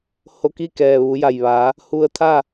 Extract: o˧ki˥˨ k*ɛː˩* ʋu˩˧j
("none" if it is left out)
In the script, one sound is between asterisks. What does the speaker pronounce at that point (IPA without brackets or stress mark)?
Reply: ɛː˩